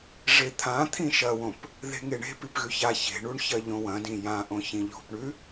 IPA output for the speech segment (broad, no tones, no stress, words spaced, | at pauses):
ʐet̪ʰã t̪ʰĩʃɐwõp | ðe̤ŋeɳe̤ pipɣʉça çe̤ɳuɳçɐ ʎõwɐ̃dĩ jãʔõ çĩʎo̤pɳʉ